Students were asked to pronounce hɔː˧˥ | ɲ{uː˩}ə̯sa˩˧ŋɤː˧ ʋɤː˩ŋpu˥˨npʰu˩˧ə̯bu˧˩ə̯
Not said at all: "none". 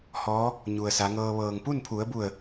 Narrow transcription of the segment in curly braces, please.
u˩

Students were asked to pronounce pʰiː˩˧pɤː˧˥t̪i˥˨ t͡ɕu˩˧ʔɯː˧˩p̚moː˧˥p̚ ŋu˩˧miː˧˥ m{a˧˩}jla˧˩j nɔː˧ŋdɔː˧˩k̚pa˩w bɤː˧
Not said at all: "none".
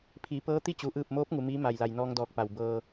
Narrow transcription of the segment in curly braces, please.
a˧˩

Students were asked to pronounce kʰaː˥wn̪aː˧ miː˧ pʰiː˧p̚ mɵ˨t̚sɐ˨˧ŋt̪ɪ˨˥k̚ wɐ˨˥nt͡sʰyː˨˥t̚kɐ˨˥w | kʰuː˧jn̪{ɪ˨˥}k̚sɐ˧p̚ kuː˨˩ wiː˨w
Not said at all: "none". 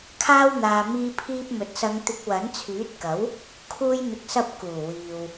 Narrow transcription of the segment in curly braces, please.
ɪ˨˥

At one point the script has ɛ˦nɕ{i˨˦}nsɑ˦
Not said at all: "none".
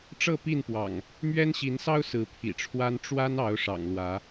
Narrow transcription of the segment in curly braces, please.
i˨˦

